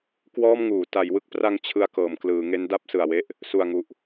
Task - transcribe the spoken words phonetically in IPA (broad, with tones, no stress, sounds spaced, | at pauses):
k w ɔː˥˩ m ŋ uː˩˦ t a˩˦ j w ɯ˥˩ k̚ p r a˧ ŋ t͡ɕʰ ɯ˧ a̯ k ɤː˩˦ m k l ɯː˩˦ ŋ e˦˥ n d a˥˩ p̚ s ɯ˨˩ a̯ w e˥˩ ʔ | s u˨˩ a̯ ŋ u˨˩ ʔ